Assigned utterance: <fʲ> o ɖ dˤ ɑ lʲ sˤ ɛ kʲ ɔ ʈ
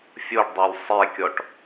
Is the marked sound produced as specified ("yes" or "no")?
yes